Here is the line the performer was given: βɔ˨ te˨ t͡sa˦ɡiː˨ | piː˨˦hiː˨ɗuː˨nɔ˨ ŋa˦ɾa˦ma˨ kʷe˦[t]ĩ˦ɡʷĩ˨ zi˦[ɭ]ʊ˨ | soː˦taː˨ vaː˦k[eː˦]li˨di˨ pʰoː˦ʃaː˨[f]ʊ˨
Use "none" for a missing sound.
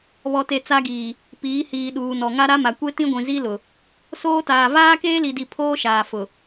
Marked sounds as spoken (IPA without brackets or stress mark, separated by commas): t, l, eː˦, f